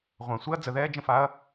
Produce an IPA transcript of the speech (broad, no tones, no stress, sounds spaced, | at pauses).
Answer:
ʁʷ ã sʷ e ɐ̯ d͡z ə ð ɛː d͡ʒ ə̃ f a ɐ̯